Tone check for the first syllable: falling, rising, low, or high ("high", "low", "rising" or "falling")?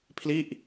falling